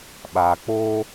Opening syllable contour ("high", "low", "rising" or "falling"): low